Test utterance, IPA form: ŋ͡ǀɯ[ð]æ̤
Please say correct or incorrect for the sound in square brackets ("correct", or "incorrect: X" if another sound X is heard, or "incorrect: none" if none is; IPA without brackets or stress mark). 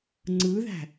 correct